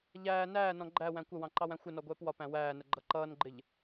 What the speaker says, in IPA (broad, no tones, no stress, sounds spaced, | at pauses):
ʎ æː n æː n ɔ̃ ɡ͡ǃ æ w æ̃ kʷ ə w ɑ̃ ǃ ɑ w æ̃ xʷ ɪ n ɔ ɡʷ ɛː p w ɒ p æ̃ w æː n ə ɡ͡ǃ ʌ ǃ ʌː n ɡ͡ǃ ɪ ʎ